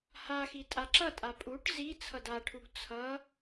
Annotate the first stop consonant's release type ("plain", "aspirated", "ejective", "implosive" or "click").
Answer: ejective